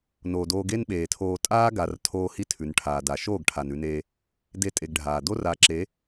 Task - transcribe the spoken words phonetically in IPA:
no˨doː˧ɡe˦n ɓeː˨tʰoː˧ tʼaː˦ɡa˨rtʰoː˧ hi˦tʰʉ˨nʈʰaː˨ da˨ʃoː˦˨ɡʈʰa˨n ʉ˧neː˧ | de˦tʼe˧ɡɖʱaː˨ do˦ra˨˦ǁe˨˦

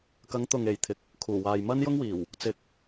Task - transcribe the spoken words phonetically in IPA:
kɐ˨˥ŋt̪ʊ˨ŋ e˨jt̪ʰɪ˧k̚ | kʰuː˨˩waː˨j mɐ˥njʊ˥ŋwiː˨˩w | t͡sɪ˧k̚

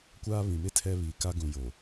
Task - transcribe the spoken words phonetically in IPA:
kʷaː˦ βĩ˨mɪ˦ tʰɛ˦ βi˨ka˦ ɡũ˨ jo˨

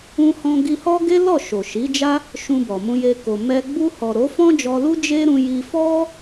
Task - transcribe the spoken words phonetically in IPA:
ũ˧hɔ̃˧ ɡi˧hɔ˦ɡe˦ lɔ˦˨ʃo˨ʃi˨˦d͡ʒa˦ | ʃũ˧bɔ˨mũ˧je˧ ko˨mɛ˧ ɡ͡bu˧hɔ˨ ɾo˨˦fɔ̃˦d͡ʒɔ˧lu˦ d͡ʒe˦ ɾũ˧ji˧ fɔ˦

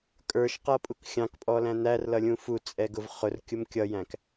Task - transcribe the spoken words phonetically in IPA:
kʼə˞ʃqʌpʼuk xʲɑ̃kpʼɔlæ̃ n̪ærlʌlʲũ fut͡sʼɛɡʊv χʊrkʲʊm kʲʌjæ̃k

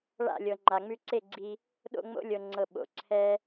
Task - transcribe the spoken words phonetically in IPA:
ɭa̰˦˨lʲɤ˨ŋ͡ǃa˨ ŋ͡mʉ˧ǀe˦˨ɡ͡ǀi˧ | ɗo̰˦˨ ŋ͡mo̰˦lʲɤ˨ŋ͡ǀɤ˨ ɓo̰˨ǀʰɛ˦

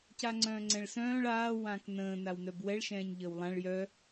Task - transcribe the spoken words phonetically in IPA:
caŋ͡ǀœ̃ːŋ͡ǀɛ̃ɭsœ̃ːɭ aː wãːknə̃ː nawnœbwɛɭ ʃɛ̃ːɲʎəːwlˠãɭ jœ

